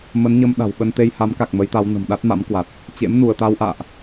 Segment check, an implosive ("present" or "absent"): present